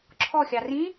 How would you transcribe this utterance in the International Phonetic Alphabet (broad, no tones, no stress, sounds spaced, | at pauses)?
ǁʰ ɔ xʲ ɑ r ĩ